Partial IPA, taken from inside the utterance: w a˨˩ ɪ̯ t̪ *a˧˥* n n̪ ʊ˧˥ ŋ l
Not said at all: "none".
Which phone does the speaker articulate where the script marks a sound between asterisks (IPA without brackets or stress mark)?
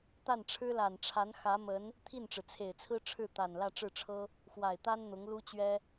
a˥